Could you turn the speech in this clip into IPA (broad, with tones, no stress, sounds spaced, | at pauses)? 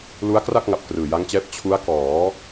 l u˦˥ a̯ k r a˥˩ k̚ ŋ a˨˩ p̚ k r ɯː˨˩ j a˦˥ ŋ t͡ɕ ɛː˦˥ p̚ t͡ɕʰ u˦˥ a̯ k ɔː˩˦